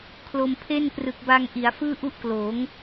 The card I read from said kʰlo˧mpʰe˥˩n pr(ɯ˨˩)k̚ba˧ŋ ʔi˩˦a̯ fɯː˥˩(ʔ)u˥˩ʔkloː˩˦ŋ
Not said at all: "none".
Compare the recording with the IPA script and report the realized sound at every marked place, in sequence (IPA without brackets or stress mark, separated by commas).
ɯ˨˩, ʔ